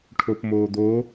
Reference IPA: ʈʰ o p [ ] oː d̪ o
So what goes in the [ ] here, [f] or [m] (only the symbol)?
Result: m